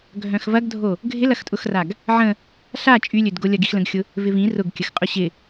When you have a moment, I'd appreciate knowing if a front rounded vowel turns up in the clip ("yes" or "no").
yes